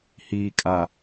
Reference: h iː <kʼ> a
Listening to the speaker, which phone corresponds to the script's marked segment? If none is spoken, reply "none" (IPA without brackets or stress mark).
kʼ